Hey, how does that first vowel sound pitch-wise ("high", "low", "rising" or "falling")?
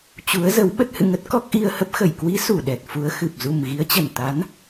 rising